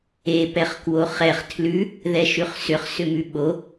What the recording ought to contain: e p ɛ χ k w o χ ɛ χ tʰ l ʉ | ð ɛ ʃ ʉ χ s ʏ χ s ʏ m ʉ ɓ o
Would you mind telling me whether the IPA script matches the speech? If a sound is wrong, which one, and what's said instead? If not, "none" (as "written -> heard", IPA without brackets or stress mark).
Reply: none